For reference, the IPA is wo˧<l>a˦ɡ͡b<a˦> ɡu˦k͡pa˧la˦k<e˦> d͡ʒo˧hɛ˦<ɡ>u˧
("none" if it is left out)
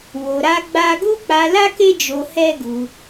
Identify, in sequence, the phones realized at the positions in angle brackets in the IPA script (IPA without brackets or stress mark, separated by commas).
ɾ, a˦, e˦, ɡ